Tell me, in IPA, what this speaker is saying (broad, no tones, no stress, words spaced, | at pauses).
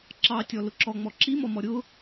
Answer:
ǁɑtʲɔ lʊǁɔŋ͡mɔ ǁimɔmɔ ɾʲʊ